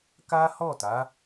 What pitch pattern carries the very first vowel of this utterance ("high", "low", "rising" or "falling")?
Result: high